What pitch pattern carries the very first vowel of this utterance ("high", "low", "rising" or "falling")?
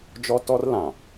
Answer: high